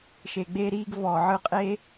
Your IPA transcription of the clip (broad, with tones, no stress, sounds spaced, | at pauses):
ʃ e˨ ɡ͡b e˧ ɾ iː˧ ɡ v ɔ˨ ʕ ɯ˧ qʼ e˦